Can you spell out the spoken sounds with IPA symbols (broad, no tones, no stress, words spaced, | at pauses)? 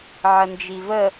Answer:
ʕənd͡ʒivə